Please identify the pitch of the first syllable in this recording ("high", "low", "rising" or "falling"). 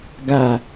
low